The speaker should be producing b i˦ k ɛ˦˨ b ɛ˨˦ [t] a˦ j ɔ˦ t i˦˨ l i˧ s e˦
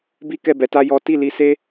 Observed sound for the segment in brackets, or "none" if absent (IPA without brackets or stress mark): t